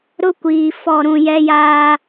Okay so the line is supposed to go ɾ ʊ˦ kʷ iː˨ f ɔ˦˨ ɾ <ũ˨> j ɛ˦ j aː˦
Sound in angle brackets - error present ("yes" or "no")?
yes